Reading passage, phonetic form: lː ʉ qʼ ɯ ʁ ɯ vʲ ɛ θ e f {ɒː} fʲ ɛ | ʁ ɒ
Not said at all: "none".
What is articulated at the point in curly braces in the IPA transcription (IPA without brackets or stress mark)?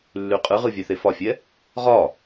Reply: ɒ